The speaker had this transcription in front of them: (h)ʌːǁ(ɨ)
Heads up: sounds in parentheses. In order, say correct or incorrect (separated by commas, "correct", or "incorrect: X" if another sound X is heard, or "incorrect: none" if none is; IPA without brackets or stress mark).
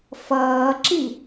incorrect: f, incorrect: i